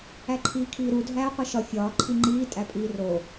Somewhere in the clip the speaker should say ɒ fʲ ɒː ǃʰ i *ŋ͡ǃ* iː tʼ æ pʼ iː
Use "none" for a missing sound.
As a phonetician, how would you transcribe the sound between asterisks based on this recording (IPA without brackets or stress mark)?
ŋ͡ǃ